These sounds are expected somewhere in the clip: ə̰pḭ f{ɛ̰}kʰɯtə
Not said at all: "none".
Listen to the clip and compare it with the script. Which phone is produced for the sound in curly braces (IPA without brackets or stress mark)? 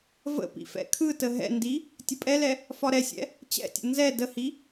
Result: ɛ̰